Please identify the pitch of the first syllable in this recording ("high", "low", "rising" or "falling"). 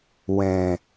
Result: low